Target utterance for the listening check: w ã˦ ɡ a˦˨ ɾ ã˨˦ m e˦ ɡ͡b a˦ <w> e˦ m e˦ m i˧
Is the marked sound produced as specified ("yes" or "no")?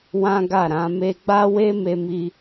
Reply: yes